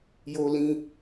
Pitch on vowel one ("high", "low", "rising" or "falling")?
low